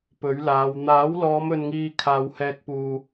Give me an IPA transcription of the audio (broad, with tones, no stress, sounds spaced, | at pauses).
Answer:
p ɵ˨˥ ɥ l aː˨˧ w n̪ aː˨˥ w l ɔː˨˧ m ɵ˨ n ŋ iː˨ kʰ aː˨ w h ɛː˧ k̚ p uː˨